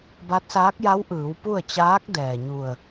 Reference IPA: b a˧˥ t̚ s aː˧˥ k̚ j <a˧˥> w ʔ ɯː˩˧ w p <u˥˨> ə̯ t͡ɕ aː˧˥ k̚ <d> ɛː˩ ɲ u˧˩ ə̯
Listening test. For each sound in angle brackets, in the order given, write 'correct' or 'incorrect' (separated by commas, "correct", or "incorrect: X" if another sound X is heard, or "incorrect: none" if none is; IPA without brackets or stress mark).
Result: correct, correct, correct